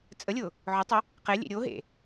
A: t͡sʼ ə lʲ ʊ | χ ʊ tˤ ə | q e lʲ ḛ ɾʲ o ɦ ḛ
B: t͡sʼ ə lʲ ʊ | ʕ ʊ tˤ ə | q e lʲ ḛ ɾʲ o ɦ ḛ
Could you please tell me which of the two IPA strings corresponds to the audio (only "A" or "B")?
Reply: B